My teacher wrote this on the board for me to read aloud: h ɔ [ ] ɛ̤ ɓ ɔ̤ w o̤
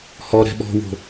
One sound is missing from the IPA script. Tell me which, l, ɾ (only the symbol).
ɾ